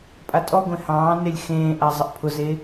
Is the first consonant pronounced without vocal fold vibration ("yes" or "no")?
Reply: yes